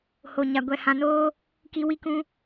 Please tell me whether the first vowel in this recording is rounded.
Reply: yes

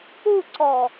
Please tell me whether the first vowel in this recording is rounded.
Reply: yes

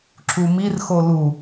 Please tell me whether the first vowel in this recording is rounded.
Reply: yes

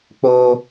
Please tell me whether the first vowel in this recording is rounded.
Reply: yes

